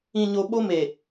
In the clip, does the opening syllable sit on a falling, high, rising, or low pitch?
low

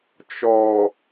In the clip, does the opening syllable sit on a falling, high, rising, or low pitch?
low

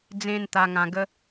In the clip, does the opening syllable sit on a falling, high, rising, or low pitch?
high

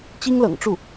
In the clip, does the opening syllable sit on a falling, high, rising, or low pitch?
high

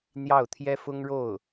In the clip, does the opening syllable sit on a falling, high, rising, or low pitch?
falling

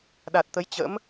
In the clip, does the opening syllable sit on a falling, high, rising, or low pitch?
low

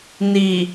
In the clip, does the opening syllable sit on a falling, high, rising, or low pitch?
low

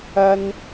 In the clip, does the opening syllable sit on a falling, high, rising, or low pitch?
high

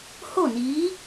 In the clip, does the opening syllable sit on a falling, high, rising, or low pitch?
falling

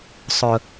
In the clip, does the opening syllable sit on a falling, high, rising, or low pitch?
low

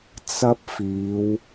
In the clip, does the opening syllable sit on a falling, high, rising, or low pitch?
high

